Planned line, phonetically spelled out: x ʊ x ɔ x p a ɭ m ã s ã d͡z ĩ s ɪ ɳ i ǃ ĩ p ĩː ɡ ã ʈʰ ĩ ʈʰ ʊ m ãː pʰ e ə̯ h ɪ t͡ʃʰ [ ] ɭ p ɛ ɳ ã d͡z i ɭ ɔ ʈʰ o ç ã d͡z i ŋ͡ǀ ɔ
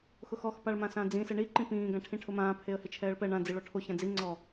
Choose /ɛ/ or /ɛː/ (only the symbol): ɛː